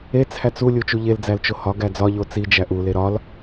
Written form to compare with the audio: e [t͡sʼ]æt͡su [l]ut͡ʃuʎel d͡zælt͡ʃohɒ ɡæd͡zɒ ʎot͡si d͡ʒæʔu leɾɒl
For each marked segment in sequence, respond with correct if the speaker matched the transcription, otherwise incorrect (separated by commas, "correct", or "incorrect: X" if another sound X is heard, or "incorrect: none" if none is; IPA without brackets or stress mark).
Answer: incorrect: t͡sʰ, incorrect: lʲ